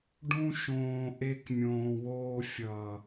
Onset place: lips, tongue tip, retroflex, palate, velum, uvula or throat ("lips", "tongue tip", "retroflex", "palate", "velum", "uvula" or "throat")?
retroflex